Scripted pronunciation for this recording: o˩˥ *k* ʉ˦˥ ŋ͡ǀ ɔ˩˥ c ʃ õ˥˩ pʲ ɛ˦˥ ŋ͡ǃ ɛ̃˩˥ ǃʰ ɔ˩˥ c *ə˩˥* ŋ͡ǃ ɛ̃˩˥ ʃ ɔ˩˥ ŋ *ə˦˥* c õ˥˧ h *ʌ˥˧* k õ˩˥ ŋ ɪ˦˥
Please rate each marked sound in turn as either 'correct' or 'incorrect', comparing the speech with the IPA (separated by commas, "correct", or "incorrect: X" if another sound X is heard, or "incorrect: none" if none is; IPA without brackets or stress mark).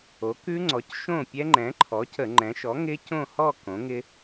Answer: correct, incorrect: ə˧˩˧, incorrect: ɪ˦˥, incorrect: ɔ˥˧